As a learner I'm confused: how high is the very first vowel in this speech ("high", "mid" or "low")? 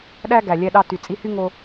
low